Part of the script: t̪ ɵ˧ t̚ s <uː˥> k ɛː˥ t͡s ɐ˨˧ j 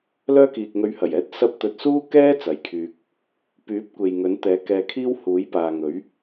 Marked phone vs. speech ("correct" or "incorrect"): correct